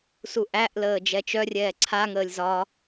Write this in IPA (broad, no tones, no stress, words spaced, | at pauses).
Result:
suʔæʔləː d͡ʒɛt͡ʃœrʲɛː ǀʰa ŋəːlʲzɒ